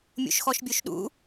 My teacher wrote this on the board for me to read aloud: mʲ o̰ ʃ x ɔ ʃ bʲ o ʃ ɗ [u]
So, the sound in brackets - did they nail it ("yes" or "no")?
no